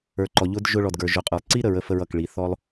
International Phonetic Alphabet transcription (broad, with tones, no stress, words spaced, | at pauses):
ə˞˩˧ǃɔ˩ ʎʊ˧˥dʒʊ˧ɭɔ˩d ɡə˞˩ʒʊ˩˧qʼə˞˩lˠǀi˥ ɾə˩˧ɹə˧fə˧ɹʌ˩k ɭi˩˧ θɔ˥lˠ